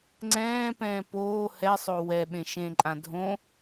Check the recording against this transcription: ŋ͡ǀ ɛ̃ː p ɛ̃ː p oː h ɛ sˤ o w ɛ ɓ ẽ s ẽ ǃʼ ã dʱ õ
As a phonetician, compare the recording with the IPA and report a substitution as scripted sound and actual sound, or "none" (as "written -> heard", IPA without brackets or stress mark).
s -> ʃ